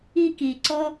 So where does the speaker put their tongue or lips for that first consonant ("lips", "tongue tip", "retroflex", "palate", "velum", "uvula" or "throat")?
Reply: velum